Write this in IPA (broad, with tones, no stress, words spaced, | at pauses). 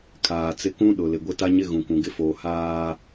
kʰaː˨t͡sɪ˦ kũ˦ɗʊ˨ lɪ˨ɡʷɪ˦ ta˦ɲɪ˦ ɣũ˨kʷũ˨ɡɪ˦foː˨ haː˨